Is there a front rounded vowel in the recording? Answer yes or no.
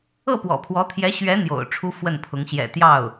no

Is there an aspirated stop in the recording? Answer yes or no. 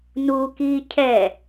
yes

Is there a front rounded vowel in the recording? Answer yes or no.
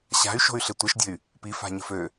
yes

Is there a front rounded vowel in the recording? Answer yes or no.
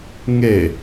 no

